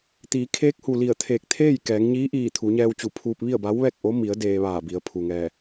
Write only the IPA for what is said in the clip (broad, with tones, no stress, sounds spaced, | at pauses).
t̪ iː˩˧ kʰ eː˧˥ k̚ h u˩ l i˧˩ ə̯ t̪ʰ eː˧˩ k̚ t̪ʰ eː˥˨ j k ɛː˩˧ ŋ ɲ iː˧˥ ʔ iː˧˩ t̪ʰ u˩˧ ɲ ɛː˧ w t͡ɕ u˧˩ pʰ uː˧ p̚ ʋ i˥˨ ə̯ b a˧˥ w ʋ ɛː˥˨ k̚ ʔ o˧˥ m i˩˧ ə̯ d eː˧ ʋ aː˧˩ b i˩˧ ə̯ pʰ u˩ ŋ ɛː˧˩